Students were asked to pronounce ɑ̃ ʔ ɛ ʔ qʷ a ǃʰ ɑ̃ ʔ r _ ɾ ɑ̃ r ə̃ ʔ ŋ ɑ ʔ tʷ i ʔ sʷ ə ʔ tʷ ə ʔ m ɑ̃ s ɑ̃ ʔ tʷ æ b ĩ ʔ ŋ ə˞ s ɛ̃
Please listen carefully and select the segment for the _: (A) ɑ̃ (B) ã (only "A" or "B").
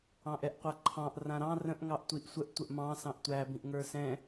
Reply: B